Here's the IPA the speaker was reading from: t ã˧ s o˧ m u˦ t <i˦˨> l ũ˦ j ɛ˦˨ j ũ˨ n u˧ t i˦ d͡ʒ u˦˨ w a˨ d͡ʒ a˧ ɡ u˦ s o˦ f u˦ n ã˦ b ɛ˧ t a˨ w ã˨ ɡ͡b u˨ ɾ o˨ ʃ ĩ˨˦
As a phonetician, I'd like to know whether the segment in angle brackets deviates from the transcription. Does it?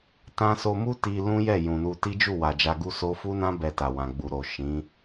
yes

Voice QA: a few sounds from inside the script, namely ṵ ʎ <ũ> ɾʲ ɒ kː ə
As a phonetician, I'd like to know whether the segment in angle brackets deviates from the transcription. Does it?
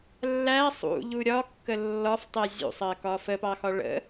yes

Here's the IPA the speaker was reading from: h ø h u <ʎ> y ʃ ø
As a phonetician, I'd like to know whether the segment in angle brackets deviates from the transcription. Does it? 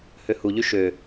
no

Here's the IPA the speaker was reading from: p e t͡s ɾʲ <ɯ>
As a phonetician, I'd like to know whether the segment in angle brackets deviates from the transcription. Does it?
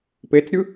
no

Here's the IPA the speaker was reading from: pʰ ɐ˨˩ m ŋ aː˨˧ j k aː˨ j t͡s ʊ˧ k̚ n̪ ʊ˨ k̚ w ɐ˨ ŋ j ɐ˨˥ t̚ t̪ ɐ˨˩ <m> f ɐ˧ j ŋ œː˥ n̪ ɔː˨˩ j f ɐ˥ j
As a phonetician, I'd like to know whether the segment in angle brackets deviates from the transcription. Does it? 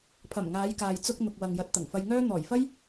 yes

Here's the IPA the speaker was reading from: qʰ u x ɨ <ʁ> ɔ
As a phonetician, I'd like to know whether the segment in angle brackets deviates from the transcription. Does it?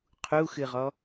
no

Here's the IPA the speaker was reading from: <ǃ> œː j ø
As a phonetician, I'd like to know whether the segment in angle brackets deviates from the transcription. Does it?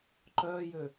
no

